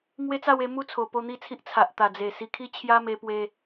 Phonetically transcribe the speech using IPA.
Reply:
ŋwe˦t͡sa˥˧we˧ mu˦t͡sʰo˨˩ po˥˧n̪i˥˧t͡sʰi˦ʔ t͡sʰa˨ʔ t̪a˨˩d͡ze˨˩ si˧kʰi˥˧ t͡ɕʰja˦me˧pwe˧

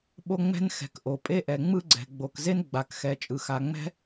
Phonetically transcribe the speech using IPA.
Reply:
ɓo˥ŋ͡mɛ̤˥n xɛ̤˩kʔo˩pʼe˥ʔɛ˩ ŋ͡mɯ˥ɡ͡ǀɛ̤˩ ɡ͡bo˩kze˥n ɡ͡ba˩kxɛ˩ t͡ʃʼɯ˩xa˩ŋ͡mɛ̤˥

